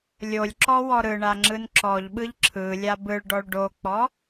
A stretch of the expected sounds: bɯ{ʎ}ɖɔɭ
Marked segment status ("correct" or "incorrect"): incorrect